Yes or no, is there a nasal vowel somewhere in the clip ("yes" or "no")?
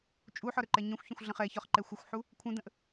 yes